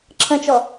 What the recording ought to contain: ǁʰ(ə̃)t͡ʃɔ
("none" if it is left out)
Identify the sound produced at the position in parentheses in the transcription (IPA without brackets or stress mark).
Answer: ə̃